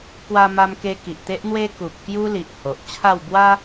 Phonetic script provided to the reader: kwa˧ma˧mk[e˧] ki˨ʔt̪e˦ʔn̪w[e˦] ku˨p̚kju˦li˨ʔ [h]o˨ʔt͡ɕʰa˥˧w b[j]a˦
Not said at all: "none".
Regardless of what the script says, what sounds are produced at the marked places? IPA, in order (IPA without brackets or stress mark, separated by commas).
e˧, e˦, h, w